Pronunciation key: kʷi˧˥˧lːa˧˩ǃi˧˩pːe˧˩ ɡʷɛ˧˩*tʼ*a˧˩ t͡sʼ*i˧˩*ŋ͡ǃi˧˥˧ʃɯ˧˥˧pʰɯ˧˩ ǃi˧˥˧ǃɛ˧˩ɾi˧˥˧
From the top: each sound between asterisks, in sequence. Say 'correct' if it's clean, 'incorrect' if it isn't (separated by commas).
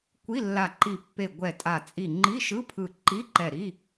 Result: correct, correct